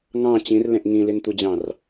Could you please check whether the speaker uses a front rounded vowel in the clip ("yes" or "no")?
no